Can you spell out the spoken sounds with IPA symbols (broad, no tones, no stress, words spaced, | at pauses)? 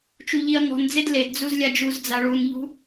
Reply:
t͡ʃuʎiɐ̯ŋɔ̤nd͡zed ledd͡zuz lʲad͡ʒuzd͡za ɭunʎṳ